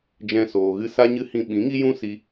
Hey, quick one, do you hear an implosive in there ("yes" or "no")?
yes